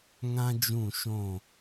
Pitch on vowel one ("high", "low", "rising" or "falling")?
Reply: high